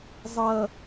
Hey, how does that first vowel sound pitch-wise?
low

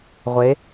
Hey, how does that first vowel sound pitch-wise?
rising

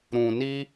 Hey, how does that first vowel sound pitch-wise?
low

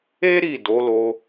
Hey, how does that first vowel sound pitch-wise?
high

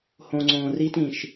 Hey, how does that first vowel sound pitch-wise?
low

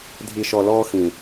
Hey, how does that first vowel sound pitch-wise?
low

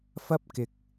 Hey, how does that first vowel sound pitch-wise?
high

